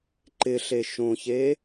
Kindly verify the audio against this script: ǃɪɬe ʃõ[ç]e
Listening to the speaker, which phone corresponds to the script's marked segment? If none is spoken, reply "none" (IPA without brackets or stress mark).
ç